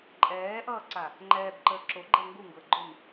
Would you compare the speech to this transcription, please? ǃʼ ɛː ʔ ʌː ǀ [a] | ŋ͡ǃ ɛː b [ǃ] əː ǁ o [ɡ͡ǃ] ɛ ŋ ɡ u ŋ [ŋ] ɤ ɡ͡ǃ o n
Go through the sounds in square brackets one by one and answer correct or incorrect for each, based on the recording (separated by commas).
correct, correct, correct, incorrect